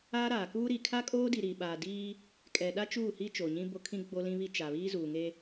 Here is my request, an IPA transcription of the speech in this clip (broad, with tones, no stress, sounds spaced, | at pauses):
aː˦ ɾ aː˨ k uː˦ ɾ i˨ kʰ a˦ kʼ oː˦ d i˨ ɾ i˨ ɓ aː˨ d iː˦ | kʼ ɛ˨ ɗ a˦ t͡ʃ uː˦˨ h i˦ t͡ʃ o˨ ɲ ĩ˦ b o˦ kʰ ĩ˦ ɡ͡b o˦ l ĩ˦ β i˦ t͡ʃ a˨ β iː˦ z uː˨ ŋ e˦